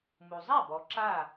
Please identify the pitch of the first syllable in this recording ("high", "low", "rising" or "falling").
low